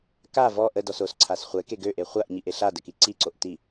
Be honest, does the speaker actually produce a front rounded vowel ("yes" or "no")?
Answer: yes